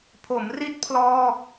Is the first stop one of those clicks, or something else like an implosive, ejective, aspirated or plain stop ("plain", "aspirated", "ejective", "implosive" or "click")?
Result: aspirated